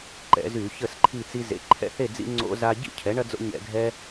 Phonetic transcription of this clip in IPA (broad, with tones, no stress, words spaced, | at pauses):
ǃɛ̰˧˩˧zy˧˩˧ çə˥˨sǃʰi˥˨t͡si˦ zḛ˩˥ǃʰɛ̰˥˨θe˥˨d͡zḭ˦ ŋ͡ǀo̰˦za˦ ɟḭ˥˨cʰɛ˩˥ɳɐ˦ d͡zo̰˦ɲɛ̰˧˩˧ɡʱɛ˦